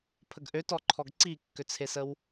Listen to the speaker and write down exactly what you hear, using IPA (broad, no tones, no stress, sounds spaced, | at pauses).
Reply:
pʰ ə ɡ ʔ ø t ɔ ǃʰ ɔ ɡ ǀ i kː ø t͡sʰ e s ə w